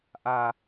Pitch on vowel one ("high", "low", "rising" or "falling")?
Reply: high